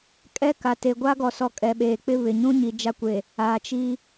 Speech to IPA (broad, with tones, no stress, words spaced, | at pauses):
kʼɛ˦ka˨ te˨ɡʷa˦ɡɔ˨sɔ˨ kʼɛ˨ɓeː˨k͡pɪ˦ βɪ˨ ɲũ˦ɲi˨ d͡ʒa˦ kʷe˨ | aː˨ t͡ʃi˦